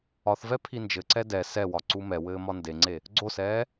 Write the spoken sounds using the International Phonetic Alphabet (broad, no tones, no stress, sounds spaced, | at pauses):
ɒ θ v ɛ pʰ i n d͡ʒ ɘ ǀ ɛ d ɛ s ɛ w ɒ ǀ u m ɛ w ɘː m ɒ n d e ŋ͡ǀ e | ɡ͡ǀ o s ɛː